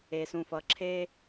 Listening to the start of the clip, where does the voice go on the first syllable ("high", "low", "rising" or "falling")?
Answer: low